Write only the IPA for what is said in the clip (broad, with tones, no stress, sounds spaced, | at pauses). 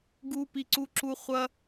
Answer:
ɡ u˦ p i˦ ǀ u˦ ǁ u˦ χʷ ɐ˦